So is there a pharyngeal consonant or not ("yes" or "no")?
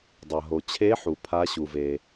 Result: yes